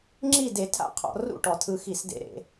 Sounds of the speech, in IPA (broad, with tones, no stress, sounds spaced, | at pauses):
ŋ͡ǁ i˥˨ d e˧˩˧ tʰ a̰˥˨ qʰ ɔ̰˧˩˧ r ṵ˥˨ ʈ ɔ˩ tʰ ɯ˨˦ x i˧˩˧ s d ḛ˨˦ ɾ ḛ˧˩˧